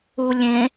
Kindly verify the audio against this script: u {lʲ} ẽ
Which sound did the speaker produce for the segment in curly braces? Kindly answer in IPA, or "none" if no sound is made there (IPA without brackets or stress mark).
lʲ